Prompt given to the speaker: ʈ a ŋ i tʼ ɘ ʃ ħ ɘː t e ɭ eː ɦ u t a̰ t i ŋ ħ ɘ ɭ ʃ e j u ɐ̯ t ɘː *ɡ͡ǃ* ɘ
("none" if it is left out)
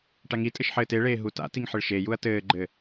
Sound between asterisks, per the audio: ɡ͡ǃ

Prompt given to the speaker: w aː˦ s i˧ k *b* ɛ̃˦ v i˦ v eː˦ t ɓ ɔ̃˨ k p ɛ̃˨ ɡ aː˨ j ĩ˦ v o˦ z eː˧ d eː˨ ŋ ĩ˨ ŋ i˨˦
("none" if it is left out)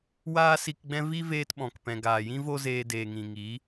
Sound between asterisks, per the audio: ɡ͡b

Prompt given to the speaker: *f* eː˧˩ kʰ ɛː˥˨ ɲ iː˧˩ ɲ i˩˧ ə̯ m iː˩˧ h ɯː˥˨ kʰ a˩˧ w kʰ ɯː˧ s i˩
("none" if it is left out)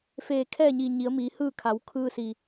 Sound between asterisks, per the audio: f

